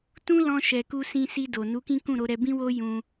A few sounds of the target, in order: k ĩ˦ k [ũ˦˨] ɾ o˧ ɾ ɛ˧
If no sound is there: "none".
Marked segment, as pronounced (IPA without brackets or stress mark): ũ˦˨